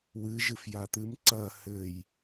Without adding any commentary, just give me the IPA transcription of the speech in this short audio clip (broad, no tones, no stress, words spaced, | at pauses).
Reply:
wɨ ʒɨfjat̪ɨm ǀɐ hɘj